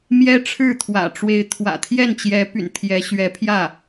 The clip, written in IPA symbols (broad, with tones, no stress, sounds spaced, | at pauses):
m j ɛ˥ ʈ͡ʂʰ ɻ̩˥˩ t̪ʰ w ä̰˨˩ ʈ͡ʂ w e˧˥ ɪ̯ t̪ʰ w ä̰˨˩ t̪ʰ j ɛ˥˩ n t͡ɕ j ɛ˧˥ p y̰˨˩ n t̪ʰ j ɛ˧˥ ɕ ɥ ɛ˧˥ pʰ j ä˥˩